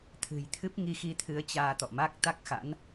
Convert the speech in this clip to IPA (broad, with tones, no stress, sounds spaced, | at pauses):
t̪ʰ ɨ̤˨˩ j t̪ʰ ɨ˦˥ p̚ ŋ i˧ x i˧ t̪ʰ ɨ˨˦ ə̯ t͡ɕ aː˧ t̪ ɔ̰˧˨ m a˦˥ k̚ t̪ a˦˥ k̚ x a̰˧˥ n